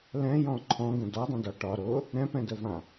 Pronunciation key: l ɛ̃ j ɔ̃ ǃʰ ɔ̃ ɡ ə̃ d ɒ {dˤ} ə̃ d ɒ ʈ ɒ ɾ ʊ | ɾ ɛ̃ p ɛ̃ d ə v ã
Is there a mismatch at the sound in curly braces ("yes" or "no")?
no